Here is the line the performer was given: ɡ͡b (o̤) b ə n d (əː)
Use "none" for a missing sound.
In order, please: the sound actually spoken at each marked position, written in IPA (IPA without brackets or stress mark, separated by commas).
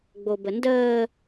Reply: o, əː